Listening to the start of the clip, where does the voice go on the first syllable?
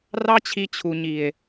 high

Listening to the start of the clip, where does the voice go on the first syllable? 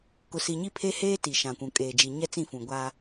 low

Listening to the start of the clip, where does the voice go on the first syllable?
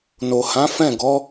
low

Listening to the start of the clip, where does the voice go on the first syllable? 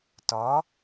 rising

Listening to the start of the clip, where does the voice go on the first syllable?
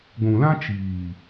low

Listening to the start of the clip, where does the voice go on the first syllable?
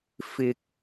low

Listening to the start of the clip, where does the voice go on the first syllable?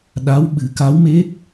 rising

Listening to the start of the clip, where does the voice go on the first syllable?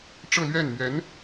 falling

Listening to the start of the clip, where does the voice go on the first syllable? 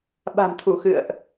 low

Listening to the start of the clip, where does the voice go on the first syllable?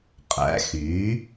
rising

